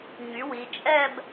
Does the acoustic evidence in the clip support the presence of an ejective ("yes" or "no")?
yes